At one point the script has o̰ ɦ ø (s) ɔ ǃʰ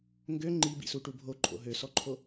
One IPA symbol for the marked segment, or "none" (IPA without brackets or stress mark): s